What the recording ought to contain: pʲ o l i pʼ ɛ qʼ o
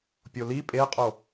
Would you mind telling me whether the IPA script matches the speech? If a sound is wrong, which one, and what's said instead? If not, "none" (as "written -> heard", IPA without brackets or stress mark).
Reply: ɛ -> e